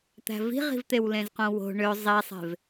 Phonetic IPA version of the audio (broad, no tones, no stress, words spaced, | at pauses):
t̪æ̤vi̤ʁi̤vt̪ew lẽzqõwo̤ ɳø zˤisˤe̤v